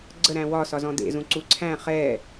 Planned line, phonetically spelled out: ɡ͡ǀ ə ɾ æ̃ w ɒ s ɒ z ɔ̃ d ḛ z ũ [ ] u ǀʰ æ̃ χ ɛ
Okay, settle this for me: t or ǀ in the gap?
ǀ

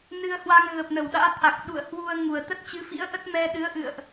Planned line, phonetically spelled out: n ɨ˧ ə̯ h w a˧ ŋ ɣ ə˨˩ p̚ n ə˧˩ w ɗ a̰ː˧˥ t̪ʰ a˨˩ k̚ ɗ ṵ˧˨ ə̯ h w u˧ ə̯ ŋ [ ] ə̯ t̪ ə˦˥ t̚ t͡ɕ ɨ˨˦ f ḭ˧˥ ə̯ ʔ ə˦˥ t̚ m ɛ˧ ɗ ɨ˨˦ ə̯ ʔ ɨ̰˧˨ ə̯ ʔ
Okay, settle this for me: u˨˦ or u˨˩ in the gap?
u˨˩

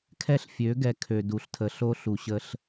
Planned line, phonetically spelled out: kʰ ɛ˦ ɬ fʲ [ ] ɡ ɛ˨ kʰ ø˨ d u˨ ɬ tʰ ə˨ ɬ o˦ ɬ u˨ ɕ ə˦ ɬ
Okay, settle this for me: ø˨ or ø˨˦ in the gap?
ø˨˦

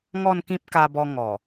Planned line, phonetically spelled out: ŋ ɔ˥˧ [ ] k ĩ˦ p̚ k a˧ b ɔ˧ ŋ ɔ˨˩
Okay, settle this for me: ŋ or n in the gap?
n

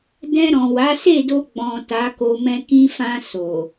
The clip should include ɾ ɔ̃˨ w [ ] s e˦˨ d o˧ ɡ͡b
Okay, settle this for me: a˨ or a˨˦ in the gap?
a˨˦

